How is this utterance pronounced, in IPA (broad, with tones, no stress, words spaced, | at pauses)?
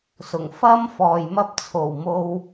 sʊ˨˩ŋ fɐ˥m fɔː˨jmɐ˥p̚t͡sʰo˨˩wmo˧w